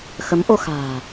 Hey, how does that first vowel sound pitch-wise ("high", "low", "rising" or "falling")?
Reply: rising